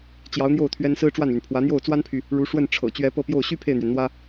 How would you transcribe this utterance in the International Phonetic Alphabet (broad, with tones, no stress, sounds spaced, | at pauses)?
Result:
t͡ɕ j ɑ˧˥ ʊ̯ n̪ j o˥˩ ʊ̯ t̪ʰ ɥ ɛ˥ n s ɹ̩˥ ʈ͡ʂ w a˥˩ n l y˩ n pʰ w ä˧˥ n̪ j o˥˩ ʊ̯ t͡s w a˥ n pʰ y˨ | ɻ u˧˥ ʂ w ə˥˩ n ʈ͡ʂʰ ɤ̰˨˩ t͡ɕ ɥ ɛ˧˥ p ɤ˥˧ p j o˥˩ ʊ̯ ɕ y˥ pʰ e˥˩ ɪ̯ n̪ ɥ ɛ˩ n n̪ w ä˥